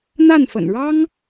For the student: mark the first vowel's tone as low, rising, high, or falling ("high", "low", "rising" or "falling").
falling